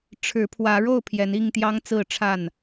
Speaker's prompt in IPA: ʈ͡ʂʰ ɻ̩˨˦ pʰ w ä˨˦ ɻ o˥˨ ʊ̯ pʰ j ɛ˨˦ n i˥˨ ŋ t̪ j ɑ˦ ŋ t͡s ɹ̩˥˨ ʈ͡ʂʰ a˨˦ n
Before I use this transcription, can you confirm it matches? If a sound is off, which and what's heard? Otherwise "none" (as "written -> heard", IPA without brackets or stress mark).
a˨˦ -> a˥˨